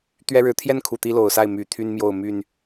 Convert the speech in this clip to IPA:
t̪ ɥ ɛ˦ ɻ ɻ̩˨ t̪ʰ j ɛ˥˨ n kʰ u˨˩ t̪ i˦ l o˨˩ ʊ̯ s a˥˨ ɪ̯ m y˨˩ t̪ʰ y˦ n m j o˥˨ ʊ̯ m y˥˨ n

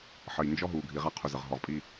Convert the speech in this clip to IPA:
ħ ə˨ j n d͡ʒ ɔ˦ ɦ u˨ ɡʱ i˨ ʁ a˦ qʰ u˨ z ə˨ ʁ ɦ ɔ˨ ʁ pʼ i˦

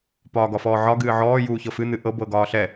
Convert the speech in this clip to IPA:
p ɒː ɡ ɒ f ɔː ʕ ɒ ɡ ɨː ʕ ɔː j uː ç ɤ f ɨ n̪ ɨ ʔ ɤ b ɤ ɡ ɒː ɬ ɛ

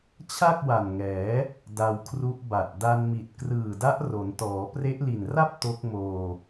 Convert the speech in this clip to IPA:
t͡ɕʰ a˥˩ k̚ w a˨˩ n ŋ ɛː˩˦ | d a˧ w kʰ r u˦˥ ʔ b a˨˩ t̚ d a˧ n m i˨˩ t̚ k r ɯː˨˩ d a˦˥ ʔ r o˩˦ n t ɔː˩˦ p r e˦˥ ʔ l i˨˩ n r a˥˩ p̚ t o˦˥ k̚ m oː˧

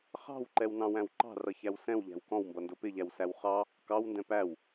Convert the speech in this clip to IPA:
χ ɑ̤ w ǃ ɛ w n ɑ̃ w æ̃ w ǃ ɑ̤ r ʌ ç æ w s ɛ̃ w ʎ æ̤ w k ɔ̃ w m b ʌ n d ʊ p ɪ ʎ æ w s æ w χ ɑ | k ɑ w n d ɛ̃ p æ w

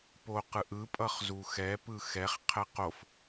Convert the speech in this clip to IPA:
p o q ɯ ʔ ɯ pʼ ʌ χ z u x ɛ p ɯ x ɛ χ qʰ ɛ q o f

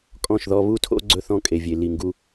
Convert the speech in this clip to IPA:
kʼ ɔ̃˦˨ ʃ ð ɔ˦ β u˦ tʰ o̰˦ ɡ͡ǀ ɵ˦ θ ɔ̃˦ kʼ e˨ vʲ e˨ l i˨ ŋ ɡ u˦

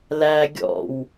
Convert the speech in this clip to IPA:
l æ ɡʲ ɔ̰ w

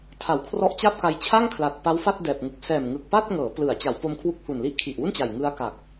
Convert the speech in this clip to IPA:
tʰ a˩˦ w kʰ r ɔ˦˥ ʔ t͡ɕ a˥˩ p̚ k a˧ j t͡ɕʰ a˥˩ ŋ kʰ l a˨˩ t̚ p a˦˥ w f a˥˩ t̚ d ɛː˨˩ p̚ ŋ u˨˩ k̚ s ɛː˨˩ m ŋ ɯ˨˩ k̚ p a˥˩ t̚ ŋ ɤː˩˦ p l ɯ˩˦ a̯ t͡ɕ a˩˦ w p o˧ m kʰ w u˦˥ k̚ h u˨˩ n l i˦˥ ʔ kʰ i˨˩ ʔ w u˥˩ n t͡ɕ a˨˩ j ŋ ɯ˦˥ a̯ k a˨˩ k̚

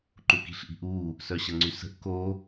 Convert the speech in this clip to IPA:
ǃ u k i̤ ɬ ʔ i̤ ʔ u | s œ ɕ ə ŋ͡ǀ y s ə̤ ʔ k o

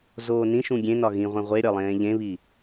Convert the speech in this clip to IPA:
z oː n ĩ ʃ ũ ɡʲ ẽ n ɒ ɣ ĩ ʁʷ ẽ ʁʷ e ɾʲ ɒ lˠ ẽː ʎ ẽ β i

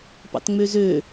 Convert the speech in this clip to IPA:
p ɑ̰ t ŋ͡m ø z ø

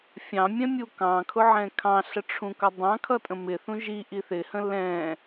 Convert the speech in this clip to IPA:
fʲ ɑ̃ mʲ ɛ̃ mʲ u k ɑ̃ kʰ ʊ ʕ ɛ̃ kʰ ɑ̃ ɬ ə ʈ͡ʂʰ ũ k ʌ dˤ ɑ̃ kʰ ʌ tʼ ə̃ m ɪ θ ũ ʒ i ʔ i θ ɪ h ə̃ l ɛ̃

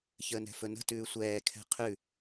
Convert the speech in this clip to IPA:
ç əː n ɛ̤ f ɵ n ə̤ t ʉː sʷ ɛː kʰ ɛ̤ qʰ ʉ

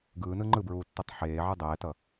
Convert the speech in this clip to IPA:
ɡ ɯː n ɯ ŋ͡ǃ ɯ b ɹ uː tː ɛ tˤ ħ eː ʕ ɯ dˤ ɛː t ʌ

